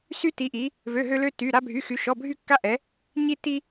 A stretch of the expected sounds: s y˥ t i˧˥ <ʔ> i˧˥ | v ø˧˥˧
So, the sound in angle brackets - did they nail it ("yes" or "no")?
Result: yes